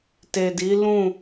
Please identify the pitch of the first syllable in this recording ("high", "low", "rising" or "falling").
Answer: low